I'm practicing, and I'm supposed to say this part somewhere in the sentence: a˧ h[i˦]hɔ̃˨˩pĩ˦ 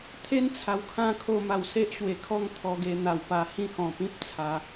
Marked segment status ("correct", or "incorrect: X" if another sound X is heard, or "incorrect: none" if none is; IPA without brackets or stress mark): incorrect: ĩ˦